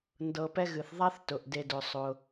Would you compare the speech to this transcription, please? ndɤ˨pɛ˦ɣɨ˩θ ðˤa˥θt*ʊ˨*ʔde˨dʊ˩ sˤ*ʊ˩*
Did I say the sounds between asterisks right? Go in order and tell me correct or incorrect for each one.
incorrect: ʊ˩, correct

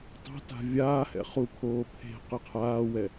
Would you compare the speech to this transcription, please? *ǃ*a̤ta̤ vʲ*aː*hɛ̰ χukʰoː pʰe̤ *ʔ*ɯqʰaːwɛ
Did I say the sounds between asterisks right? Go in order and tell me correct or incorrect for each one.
incorrect: tˤ, correct, incorrect: q

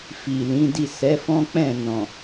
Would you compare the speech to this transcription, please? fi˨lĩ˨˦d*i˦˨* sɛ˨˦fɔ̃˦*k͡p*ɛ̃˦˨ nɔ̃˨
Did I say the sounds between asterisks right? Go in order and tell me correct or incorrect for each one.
correct, correct

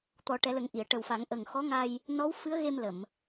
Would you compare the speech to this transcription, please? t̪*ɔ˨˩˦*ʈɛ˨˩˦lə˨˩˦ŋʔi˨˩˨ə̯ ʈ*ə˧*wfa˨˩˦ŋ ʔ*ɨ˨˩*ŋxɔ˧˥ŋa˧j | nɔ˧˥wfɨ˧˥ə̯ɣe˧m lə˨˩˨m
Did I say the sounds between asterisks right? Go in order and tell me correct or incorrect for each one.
correct, incorrect: ə˨˩, incorrect: ə˨˩

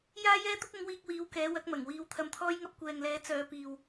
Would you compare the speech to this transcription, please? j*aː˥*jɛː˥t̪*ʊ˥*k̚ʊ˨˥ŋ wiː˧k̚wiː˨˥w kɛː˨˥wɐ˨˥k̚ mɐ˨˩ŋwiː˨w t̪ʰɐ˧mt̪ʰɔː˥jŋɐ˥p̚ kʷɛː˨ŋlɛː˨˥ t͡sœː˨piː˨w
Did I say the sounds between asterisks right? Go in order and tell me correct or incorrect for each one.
correct, correct

